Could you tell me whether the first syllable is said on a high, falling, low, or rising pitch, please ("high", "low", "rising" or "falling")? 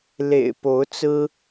low